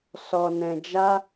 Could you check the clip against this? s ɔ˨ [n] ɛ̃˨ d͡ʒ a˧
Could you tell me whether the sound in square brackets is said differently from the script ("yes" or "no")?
no